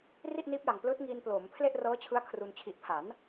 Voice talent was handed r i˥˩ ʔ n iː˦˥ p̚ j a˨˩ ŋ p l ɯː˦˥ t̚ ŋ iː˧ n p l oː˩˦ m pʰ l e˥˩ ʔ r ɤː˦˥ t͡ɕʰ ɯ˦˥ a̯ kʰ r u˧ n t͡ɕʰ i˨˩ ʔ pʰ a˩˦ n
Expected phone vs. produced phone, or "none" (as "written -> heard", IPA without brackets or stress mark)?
none